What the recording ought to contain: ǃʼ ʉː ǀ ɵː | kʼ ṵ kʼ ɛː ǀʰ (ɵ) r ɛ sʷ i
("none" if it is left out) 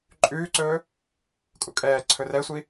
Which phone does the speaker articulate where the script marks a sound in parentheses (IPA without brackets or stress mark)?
ɵ